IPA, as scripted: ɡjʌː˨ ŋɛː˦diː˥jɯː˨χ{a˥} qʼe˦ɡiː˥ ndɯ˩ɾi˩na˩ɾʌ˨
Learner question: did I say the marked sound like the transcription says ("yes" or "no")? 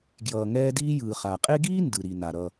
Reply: no